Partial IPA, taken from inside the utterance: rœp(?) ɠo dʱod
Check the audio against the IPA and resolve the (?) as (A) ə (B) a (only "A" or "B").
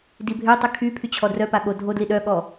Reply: B